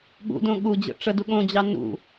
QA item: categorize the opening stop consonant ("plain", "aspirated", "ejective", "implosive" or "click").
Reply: implosive